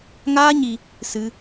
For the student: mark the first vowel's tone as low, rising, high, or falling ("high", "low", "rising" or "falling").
high